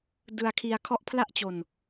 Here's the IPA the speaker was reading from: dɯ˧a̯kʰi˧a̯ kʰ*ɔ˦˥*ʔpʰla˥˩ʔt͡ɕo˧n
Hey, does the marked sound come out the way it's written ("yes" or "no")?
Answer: yes